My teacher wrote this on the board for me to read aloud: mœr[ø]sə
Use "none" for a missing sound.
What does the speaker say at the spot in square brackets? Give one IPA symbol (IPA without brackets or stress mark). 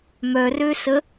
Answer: ø